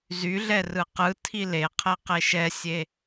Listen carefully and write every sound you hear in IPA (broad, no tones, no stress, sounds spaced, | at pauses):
z y ɮ ɛ r ɯ q ɯ tʰ i l e qʰ ɛ q e ʃ ɛ sʲ e